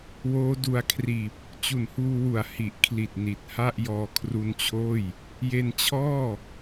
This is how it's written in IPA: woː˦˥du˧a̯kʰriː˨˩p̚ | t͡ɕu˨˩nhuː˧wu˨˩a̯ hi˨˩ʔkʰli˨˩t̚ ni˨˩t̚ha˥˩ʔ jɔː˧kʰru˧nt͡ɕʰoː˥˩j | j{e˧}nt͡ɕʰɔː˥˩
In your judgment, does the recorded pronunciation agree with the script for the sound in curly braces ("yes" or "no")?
yes